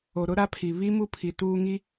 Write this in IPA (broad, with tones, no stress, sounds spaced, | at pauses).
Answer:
o˨ ɾ ʊ˦ ɾ a˦ pʰ i˨ β i˦ m u˦ pʰ i˨ t uː˦ ŋ i˦